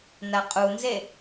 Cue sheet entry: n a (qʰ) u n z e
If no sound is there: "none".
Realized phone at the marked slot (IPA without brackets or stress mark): qʼ